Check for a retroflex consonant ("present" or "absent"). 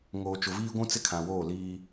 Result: absent